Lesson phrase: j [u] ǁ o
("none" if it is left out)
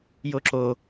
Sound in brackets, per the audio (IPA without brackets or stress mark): o